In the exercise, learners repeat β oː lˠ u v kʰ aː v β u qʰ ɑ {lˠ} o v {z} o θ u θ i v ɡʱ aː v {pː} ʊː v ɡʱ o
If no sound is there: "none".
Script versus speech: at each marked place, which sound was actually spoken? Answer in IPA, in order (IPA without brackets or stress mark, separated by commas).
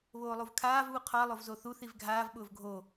lˠ, z, ɓ